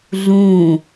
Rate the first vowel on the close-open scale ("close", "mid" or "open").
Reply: close